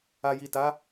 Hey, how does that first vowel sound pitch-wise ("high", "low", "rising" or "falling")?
low